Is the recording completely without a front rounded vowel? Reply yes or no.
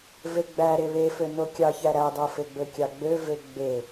no